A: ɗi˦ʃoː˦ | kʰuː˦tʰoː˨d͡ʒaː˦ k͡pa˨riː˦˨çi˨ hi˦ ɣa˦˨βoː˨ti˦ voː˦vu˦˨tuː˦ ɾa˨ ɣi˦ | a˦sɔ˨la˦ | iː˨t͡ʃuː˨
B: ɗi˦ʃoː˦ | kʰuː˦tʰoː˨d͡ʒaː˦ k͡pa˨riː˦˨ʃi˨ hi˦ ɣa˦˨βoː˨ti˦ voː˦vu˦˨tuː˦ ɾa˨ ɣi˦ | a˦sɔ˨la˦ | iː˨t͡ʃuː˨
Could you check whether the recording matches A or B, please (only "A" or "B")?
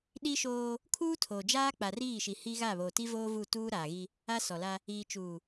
B